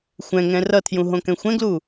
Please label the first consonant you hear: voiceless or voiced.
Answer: voiceless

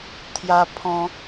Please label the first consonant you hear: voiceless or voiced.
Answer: voiceless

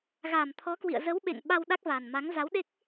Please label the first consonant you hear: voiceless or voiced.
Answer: voiced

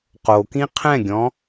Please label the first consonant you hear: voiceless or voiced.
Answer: voiceless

